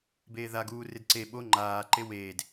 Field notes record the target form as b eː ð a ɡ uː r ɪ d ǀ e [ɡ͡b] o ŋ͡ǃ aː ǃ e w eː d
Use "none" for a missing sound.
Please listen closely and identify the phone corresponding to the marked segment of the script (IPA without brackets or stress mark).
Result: ɓ